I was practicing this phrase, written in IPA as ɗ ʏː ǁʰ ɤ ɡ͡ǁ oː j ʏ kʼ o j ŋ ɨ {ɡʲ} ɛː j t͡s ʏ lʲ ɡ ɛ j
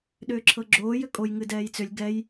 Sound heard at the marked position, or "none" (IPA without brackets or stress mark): d